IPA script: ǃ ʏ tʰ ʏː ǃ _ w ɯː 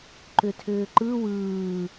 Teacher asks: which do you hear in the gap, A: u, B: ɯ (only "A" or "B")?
B